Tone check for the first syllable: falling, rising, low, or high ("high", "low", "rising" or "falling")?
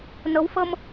rising